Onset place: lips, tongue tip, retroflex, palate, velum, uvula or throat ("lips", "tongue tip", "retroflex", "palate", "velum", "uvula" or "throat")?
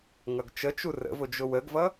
velum